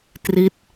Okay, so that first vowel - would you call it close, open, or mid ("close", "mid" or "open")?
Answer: close